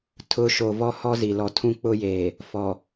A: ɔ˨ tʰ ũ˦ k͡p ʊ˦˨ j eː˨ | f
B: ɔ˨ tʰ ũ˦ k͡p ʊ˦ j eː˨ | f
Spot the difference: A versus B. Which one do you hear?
B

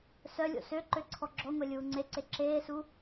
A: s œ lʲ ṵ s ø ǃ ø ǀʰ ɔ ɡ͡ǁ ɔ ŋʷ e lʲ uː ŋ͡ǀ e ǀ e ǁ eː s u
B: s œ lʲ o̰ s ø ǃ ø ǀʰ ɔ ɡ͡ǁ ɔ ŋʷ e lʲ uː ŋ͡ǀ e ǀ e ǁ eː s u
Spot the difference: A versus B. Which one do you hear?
B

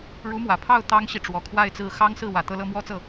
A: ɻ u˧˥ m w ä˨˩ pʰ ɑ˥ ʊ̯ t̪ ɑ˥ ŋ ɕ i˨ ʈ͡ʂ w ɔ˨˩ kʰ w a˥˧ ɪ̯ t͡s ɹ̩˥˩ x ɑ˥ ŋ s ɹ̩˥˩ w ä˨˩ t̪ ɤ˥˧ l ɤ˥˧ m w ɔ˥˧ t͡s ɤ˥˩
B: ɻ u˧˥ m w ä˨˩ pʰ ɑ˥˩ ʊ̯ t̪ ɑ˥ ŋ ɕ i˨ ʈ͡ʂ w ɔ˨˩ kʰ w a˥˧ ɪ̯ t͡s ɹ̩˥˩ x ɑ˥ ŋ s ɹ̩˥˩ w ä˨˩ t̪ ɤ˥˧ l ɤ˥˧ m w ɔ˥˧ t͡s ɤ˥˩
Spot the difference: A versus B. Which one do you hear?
B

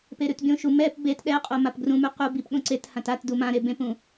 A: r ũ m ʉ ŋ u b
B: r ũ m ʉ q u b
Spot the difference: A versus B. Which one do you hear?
B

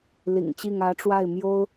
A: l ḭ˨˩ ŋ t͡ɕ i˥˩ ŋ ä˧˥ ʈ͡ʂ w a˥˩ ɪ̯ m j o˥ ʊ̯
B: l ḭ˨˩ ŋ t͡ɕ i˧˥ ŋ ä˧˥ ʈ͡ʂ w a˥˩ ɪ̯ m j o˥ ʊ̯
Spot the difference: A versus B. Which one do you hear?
A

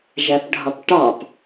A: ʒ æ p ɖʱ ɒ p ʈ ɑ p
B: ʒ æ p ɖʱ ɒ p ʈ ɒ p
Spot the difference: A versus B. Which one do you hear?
A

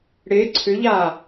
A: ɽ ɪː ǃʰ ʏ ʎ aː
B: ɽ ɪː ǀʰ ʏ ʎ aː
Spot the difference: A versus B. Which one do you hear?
B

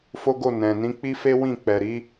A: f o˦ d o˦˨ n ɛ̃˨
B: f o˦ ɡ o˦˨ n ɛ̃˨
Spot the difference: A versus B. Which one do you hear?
B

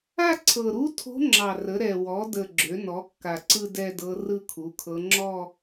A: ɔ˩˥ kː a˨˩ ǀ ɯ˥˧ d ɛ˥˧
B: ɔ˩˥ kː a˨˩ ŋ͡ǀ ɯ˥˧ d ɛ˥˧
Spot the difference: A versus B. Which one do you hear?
A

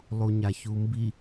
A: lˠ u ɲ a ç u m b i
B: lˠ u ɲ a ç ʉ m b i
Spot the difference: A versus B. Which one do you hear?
A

